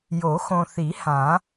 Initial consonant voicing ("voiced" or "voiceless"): voiced